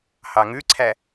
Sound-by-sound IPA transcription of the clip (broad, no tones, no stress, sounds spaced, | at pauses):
h ɑ ŋ ʉ ǀʰ æ